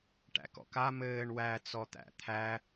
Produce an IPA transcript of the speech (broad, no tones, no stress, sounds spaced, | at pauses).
ʈ æ̰ k ɔ̰ k a m ɘː ɳ w æ t͡s ɔ t̪ æ̰ t̪ʰ æ